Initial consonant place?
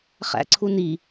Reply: uvular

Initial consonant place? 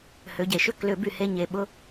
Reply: glottal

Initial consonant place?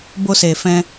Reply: labial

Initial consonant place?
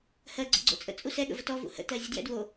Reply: glottal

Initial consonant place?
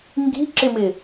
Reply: velar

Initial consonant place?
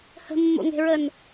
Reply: glottal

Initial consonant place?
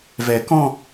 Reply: labial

